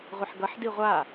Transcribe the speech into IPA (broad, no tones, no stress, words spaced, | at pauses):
ʁʷɪħɡʌħdi ʁʷa